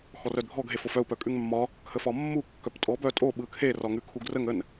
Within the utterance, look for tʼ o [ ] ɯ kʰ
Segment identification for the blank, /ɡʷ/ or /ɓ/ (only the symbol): ɓ